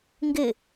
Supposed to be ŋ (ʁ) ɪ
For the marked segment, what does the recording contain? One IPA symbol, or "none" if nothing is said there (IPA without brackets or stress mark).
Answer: ɡ